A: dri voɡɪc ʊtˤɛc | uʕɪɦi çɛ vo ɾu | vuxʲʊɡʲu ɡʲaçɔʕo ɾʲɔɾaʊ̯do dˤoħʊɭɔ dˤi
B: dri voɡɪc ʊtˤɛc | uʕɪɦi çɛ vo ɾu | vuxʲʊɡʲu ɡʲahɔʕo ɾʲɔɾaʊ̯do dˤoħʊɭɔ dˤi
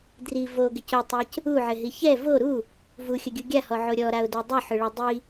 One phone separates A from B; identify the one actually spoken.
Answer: B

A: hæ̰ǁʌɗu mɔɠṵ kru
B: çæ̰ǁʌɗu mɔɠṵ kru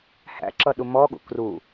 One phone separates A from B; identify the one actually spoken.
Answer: A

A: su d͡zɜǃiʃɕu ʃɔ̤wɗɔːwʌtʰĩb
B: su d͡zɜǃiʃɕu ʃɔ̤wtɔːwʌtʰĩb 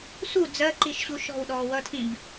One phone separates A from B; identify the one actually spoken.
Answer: A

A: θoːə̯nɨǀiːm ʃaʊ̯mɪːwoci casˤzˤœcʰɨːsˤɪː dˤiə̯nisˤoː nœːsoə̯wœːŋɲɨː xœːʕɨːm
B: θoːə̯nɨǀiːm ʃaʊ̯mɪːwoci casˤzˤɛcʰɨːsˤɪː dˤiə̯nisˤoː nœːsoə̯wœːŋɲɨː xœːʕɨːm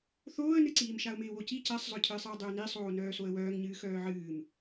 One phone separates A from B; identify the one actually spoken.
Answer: A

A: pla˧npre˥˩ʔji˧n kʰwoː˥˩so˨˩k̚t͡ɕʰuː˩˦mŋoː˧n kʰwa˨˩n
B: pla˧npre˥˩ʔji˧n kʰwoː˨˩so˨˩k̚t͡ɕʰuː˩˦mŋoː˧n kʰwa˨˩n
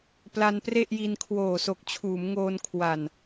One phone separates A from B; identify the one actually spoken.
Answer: B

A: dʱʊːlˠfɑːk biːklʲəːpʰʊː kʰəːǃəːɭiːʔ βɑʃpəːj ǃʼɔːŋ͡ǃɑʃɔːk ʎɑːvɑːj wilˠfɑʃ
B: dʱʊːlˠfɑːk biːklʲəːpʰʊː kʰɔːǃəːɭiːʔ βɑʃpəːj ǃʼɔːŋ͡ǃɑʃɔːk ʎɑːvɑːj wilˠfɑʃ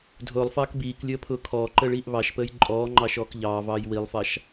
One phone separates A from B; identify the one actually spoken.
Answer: B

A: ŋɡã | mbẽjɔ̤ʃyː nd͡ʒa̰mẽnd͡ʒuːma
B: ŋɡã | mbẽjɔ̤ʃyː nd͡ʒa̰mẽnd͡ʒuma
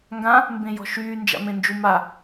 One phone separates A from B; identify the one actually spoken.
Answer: B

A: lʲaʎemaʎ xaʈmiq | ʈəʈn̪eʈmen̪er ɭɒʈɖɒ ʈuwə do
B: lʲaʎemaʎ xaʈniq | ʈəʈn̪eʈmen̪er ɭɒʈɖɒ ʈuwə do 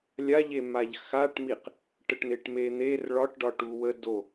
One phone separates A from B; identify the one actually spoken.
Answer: A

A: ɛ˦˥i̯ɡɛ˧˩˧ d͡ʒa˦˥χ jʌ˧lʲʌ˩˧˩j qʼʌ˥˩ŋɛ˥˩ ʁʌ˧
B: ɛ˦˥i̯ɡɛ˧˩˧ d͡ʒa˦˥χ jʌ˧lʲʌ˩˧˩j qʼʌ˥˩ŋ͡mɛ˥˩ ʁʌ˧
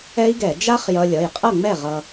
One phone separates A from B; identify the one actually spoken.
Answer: B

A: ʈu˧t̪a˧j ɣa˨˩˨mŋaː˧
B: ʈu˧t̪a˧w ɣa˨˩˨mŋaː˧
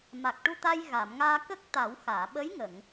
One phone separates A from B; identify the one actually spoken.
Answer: A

